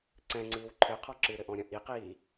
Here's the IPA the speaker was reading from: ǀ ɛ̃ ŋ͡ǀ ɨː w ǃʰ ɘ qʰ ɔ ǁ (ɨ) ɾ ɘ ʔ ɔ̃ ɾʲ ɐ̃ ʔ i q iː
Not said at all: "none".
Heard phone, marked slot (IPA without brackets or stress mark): ɨ